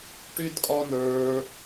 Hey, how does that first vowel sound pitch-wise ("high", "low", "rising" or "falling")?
high